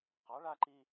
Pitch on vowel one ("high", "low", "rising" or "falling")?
rising